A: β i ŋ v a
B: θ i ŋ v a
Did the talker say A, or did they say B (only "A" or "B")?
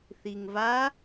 B